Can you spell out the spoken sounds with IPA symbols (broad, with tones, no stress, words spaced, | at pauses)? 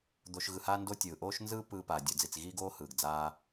d̪o˧ʃɣɯ˧haː˦ ndo˦tʲɯː˨ ʔoː˦ʃnzɯː˦ pɯː˧paː˨ dʲo˨d͡zi˨t͡sɣiː˦ɡoː˦ hɯː˨ɡd͡zaː˦